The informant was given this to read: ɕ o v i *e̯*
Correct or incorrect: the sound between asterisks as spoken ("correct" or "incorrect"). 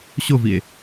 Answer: correct